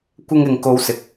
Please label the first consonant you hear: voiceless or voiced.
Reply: voiceless